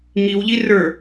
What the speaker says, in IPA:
ŋiwʎi rə˞

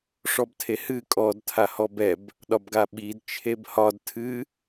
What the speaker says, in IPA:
ʂɔbtʰehɨ kʼɔdtʰa hɔbɛb | ɗɒbɡaɓid t͡ʃʰebhɒd tʰɨ

